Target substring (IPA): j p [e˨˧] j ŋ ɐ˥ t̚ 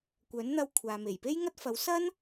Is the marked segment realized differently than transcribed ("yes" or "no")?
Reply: yes